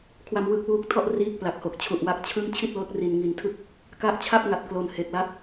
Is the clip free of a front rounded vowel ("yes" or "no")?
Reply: yes